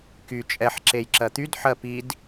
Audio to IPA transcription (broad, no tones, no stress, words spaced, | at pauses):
ky t͡ʃʼɛħ ǁejǁɜt̪yd ħɜpid